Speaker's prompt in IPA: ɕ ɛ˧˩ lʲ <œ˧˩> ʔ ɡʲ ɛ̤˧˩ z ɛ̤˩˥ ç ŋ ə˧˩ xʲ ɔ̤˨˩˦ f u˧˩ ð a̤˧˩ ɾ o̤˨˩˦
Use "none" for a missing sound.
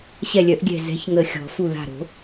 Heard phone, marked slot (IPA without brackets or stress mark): œ˨˩˦